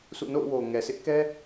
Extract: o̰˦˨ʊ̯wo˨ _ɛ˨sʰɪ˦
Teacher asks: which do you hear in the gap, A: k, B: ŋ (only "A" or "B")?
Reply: B